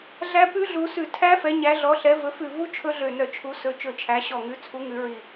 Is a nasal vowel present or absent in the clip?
absent